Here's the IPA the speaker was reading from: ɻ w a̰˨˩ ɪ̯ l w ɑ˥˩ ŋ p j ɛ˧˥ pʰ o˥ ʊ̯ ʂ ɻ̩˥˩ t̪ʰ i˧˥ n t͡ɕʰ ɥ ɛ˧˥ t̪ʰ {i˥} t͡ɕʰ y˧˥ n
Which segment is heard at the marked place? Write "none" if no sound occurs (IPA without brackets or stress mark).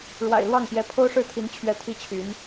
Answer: i˥